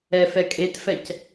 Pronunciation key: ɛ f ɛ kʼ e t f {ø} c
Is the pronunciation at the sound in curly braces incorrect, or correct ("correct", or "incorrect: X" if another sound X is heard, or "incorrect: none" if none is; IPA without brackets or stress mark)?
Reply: incorrect: ɛ